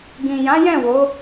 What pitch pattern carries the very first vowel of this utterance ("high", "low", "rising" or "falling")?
low